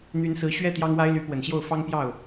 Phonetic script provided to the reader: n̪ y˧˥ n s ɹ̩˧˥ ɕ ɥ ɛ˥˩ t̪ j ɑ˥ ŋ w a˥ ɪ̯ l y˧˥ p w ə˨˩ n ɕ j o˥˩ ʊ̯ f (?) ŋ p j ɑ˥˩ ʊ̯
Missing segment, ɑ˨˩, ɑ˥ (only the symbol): ɑ˥